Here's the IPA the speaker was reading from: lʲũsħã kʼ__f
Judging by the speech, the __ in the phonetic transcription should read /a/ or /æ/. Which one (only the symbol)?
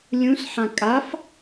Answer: a